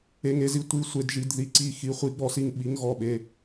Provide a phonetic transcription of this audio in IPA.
e˩˧˩ŋe˩˧˩zi˩˥ tʷi˩˧˩sʷe˩˧˩dʒi˩˧˩d ði˧˩ǀi˧˩ xi˩˧˩χʷi˩˥ɡ͡bɔ˧˩si˧˩ŋ ɓi˩˥ŋɣɔ˧˩ɓe˩˧˩

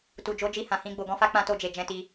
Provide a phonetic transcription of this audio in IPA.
tu˨d͡ʒo˨˦d͡ʒi˧ hã˨hĩ˧ ɡ͡bo˨ɡɔ̃˧fa˦ k͡pã˦to˦˨d͡ʒe˨d͡ʒɛ̃˧ ti˧

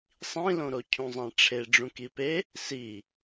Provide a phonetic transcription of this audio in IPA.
sˤĩlõɾo cʰũzˤæ̃ʈ͡ʂʰe ɖ͡ʐũkipe | si

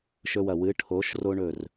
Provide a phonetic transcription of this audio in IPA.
ʃɵ˦wɐ˧˩ wɨ˨˥ʈʰo˨˥ʃ ro˦ɳɵ˧˩r

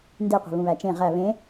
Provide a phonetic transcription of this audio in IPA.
ndeqʷe̤ βũβæt͡ʃẽ ʁæ βẽ

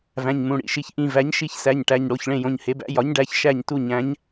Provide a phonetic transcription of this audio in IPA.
væ̃˩˧˩ɲmũ˩˧˩ɽḭ˧˩ʃi˩˧˩ç ʔĩ˧˩ væ˩˥ɲʃi˧˩çsæ˩˧˩ɲ ʈæ˩˧˩ɲɽo˩˧˩ç ɭẽ˧˩jõ˩˧˩ɲhe˩˥bæ̰˩˥ jɒ˩˥ɲɖæ˩˧˩ç ʃæ˧˩ɲtu˧˩ɲæ̃˩˥ɲ

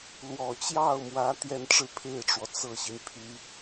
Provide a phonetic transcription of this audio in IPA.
lwɔ˨˩t͡ɕjɑ˥˩ʊ̯mwä˧˥ t̪jɛ˥˧nʈ͡ʂɻ̩˥˧pʰe˥˩ɪ̯ʈ͡ʂwɔ˩ t͡sɤ˥˩ɕi˩n pʰy˨˩˦

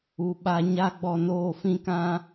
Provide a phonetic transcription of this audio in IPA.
u˨ɓa˧ ɲa˦ ɡ͡bɔ˧noː˦˨fĩ˦kã˦

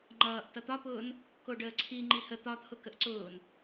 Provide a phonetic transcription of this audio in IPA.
ŋ͡ǃʌːʔ tʌt̪ɒpʊːn | koɖəːǀʰi ŋ͡ǃihə t̪ɒt̪ʰʊ kəʔǀʊːn

